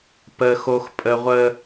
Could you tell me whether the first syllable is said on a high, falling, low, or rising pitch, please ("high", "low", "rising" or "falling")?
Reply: high